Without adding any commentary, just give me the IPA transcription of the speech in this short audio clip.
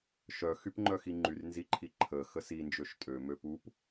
ʃ œ x y p ŋ͡ǃ œ x i ŋ͡ǃ y r n z i ǃʰ i ǃʰ ə x ə s i n d͡ʒ ø ʃ tʼ ø m ø p u p

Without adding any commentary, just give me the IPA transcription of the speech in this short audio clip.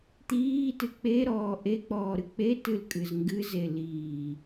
t̪ iː t ɨ k͡p e ɾ ɔː ʔ e k͡p ɔː ɾ ɨ k͡p e t ɨ l kʼ ɨ z ŋ ɡ ɨ z e l iː

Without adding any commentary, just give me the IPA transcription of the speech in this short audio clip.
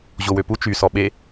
ʑ o w ø p u t͡ʃ y s ɔ ɓ e

